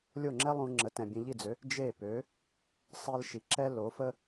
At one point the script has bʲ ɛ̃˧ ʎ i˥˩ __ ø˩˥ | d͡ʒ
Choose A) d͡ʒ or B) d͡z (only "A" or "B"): B